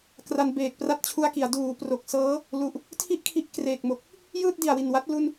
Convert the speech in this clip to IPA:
kra˧nbeː˨˩k̚ pra˦˥t̚t͡ɕʰu˧a̯ki˩˦a̯ duː˩˦ pro˨˩k̚sɤː˦˥ | lu˨˩ʔ | tʰi˥˩ʔkʰi˦˥ʔ kreː˨˩k̚mo˨˩k̚ | jɯː˥˩t̚di˨˩a̯wi˨˩nwa˦˥t̚ lu˥˩n

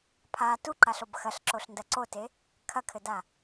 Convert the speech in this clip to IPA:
pʰa tuǃaɬob xɐɬǁoɬndɐ ǀote | kʰɐkʰɘda

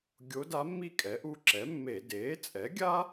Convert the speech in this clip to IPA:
ɡʲo˧˥da˧˥mːi˥˨ kʼɛ˩˥ʔu˧˥ǁɛ˩˥mːe˧˩˧ deː˩˥t͡sʼɛ˩˥ ɡʲa˥

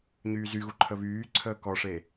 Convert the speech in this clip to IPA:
ɲyːzyɣu ǃʰəβyːǀʰəː kɔʂe

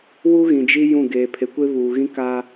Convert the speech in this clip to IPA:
wu˦ɣĩ˨d͡ʒi˦ jũ˦˨ ɡeː˨pʰe˨kʷe˦ βuː˨ɣĩ˦ kaː˦

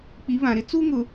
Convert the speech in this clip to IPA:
k͡pi˨˦βã˨ɾɪ˦ t͡su˦ŋʊ˨

